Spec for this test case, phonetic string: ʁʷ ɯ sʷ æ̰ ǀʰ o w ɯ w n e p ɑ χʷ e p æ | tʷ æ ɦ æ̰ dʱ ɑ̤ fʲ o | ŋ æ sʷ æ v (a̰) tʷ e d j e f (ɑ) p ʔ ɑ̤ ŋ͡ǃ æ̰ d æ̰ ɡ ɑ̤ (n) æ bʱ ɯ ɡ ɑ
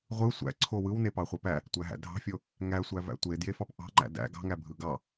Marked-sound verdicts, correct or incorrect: incorrect: æ̰, correct, incorrect: ŋ

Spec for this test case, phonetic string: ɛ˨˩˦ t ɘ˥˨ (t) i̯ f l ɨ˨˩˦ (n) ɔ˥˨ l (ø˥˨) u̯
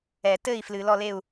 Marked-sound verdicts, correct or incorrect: incorrect: none, incorrect: l, incorrect: e˥˨

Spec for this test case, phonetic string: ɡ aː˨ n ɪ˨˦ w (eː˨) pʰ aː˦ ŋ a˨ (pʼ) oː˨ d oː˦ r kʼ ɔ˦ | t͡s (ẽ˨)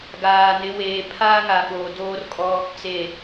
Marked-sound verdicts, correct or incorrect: correct, incorrect: ɓ, incorrect: e˨

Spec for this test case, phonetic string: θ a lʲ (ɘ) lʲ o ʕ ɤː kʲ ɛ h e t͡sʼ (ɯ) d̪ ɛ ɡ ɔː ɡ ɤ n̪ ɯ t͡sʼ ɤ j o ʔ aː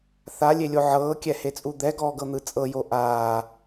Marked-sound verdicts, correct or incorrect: incorrect: e, incorrect: u

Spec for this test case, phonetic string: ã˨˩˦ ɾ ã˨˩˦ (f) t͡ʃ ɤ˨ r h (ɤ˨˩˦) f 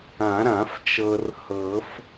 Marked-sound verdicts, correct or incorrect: correct, correct

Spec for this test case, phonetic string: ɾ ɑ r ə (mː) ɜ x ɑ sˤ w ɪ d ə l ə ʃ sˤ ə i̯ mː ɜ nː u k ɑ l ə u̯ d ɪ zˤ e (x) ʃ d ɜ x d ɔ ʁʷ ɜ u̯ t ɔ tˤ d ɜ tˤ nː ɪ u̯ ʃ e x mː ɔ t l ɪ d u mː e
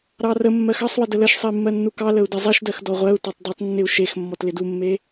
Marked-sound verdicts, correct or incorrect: correct, incorrect: none

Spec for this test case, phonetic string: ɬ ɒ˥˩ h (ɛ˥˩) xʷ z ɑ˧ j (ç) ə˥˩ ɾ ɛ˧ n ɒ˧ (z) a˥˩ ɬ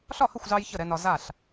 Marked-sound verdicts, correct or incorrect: incorrect: ə˥˩, correct, correct

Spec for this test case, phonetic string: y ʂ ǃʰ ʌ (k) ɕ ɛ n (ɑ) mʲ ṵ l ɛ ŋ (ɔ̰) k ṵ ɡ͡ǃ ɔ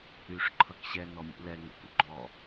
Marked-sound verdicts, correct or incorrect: correct, incorrect: ɔ, incorrect: ə̰

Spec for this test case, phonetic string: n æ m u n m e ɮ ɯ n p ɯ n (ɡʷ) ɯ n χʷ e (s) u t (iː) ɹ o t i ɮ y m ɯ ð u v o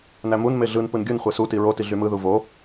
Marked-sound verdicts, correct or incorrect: incorrect: ɡʲ, correct, incorrect: i

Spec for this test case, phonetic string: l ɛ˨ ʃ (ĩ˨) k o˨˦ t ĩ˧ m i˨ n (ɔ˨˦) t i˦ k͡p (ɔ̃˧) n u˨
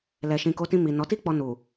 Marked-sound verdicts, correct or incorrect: correct, correct, incorrect: ɔ˧

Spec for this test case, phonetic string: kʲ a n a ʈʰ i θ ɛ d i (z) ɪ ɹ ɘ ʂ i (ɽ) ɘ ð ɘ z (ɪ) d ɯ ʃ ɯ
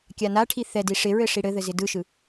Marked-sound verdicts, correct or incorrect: incorrect: ʂ, correct, correct

